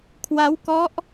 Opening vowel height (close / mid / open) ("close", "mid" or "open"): open